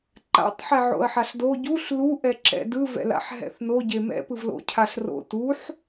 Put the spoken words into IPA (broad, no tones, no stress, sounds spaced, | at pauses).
ǃ a̰ tˤ ħ ɛ ʕ o̰ ɐ̯ ħ a ɬ d o ɟ u ɬ l u ʔ ɛ ǁ ɛ̰ d ɯ v ɛ̰ l a̰ ħ ɦ ɛ̰ θ n o ɟ e m ɛ̰ p ɯ v l o̰ cʰ a ɬ r o̰ t u ħ